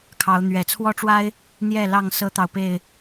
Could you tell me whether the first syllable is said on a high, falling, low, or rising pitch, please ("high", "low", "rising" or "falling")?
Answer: rising